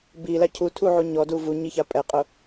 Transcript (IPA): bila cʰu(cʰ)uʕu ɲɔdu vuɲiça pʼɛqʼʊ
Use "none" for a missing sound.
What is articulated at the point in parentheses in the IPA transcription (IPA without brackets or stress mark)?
tʰ